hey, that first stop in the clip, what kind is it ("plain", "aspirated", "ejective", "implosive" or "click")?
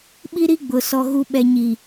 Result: implosive